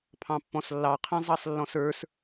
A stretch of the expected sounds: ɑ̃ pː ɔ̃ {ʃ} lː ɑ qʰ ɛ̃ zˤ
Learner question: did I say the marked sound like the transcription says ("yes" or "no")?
no